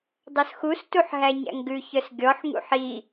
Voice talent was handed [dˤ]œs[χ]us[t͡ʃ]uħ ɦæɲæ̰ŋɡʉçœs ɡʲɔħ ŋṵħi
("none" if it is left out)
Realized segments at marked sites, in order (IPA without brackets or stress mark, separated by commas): dˤ, x, t